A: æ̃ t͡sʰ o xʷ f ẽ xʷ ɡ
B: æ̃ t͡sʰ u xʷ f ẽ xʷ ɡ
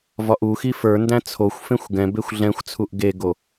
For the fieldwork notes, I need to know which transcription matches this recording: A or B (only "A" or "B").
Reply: A